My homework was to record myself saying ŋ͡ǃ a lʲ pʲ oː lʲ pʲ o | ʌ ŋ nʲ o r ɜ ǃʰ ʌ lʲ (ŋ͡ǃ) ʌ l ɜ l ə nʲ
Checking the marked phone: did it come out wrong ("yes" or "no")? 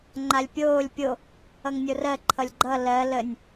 yes